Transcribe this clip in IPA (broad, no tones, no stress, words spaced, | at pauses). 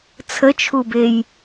t͡sʰət͡ʃʰubej